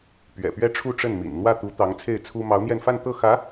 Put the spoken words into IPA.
p ɥ ɛ̰˨˩ p ɥ ɛ˥˧ ʈ͡ʂʰ u˥˧ ʈ͡ʂ ə˥˩ n m ḭ˨˩ n n̪ w ä˥˩ t̪ u˧˥ t̪ ɑ˧˥ ŋ t͡sʰ e˥˩ ɪ̯ t͡sʰ u˥ m ɑ˧˥ ʊ̯ n̪ j ɛ˥˧ n f a˥˧ n t̪ ɤ˥˩ x ä˧˥

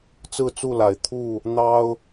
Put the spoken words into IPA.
t͡s ɹ̩˥˨ t͡s u˥˨ l a˨˩ ɪ̯ t̪ʰ u˥˨ | n̪ ɑ˦ ʊ̯

